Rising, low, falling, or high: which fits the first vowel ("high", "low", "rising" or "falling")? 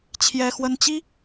high